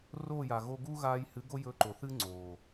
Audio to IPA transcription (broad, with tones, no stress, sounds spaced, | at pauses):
r oː˦˨ j a˨ ɣ o˧ ɡ u˦ ɣ aː˧ j h ɨ˨˦ ɡ o˦ j ɵ˧ ǃ o˨ θ ɨ˦ ŋ͡ǀ oː˨